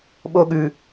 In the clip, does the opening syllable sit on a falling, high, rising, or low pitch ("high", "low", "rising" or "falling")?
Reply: high